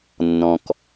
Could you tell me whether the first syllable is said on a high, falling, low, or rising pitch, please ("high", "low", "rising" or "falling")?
low